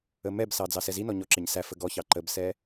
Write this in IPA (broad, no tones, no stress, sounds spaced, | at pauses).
ə m ɛ b s ɑ d͡z ɑ s ɛ z i n ɔ ɲ ɔ ǁ ɪ ɲ s æ f ə ɡ ɔ ç ɑ ǃ ə b s ɛ